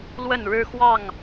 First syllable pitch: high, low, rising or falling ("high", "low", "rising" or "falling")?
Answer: falling